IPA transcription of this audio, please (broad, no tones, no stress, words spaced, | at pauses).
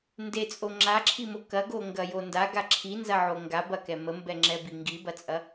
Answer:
ndet͡sʼo ŋ͡ǁaǁʰimo kɐɡoŋɡɐjo ndaɡa ǁʰinzɐʕo ŋɡabɐkɛ məmbɛŋ͡ǁɛbi ŋɡibɐt͡sʼɐ